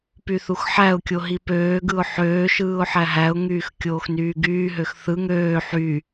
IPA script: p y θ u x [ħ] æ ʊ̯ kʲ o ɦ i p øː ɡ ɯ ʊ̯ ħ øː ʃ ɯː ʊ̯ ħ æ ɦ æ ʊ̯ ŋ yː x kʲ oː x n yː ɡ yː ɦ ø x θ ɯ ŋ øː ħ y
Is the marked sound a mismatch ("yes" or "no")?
no